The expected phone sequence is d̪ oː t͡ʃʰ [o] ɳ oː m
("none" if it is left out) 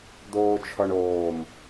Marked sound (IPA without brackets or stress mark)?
ɔ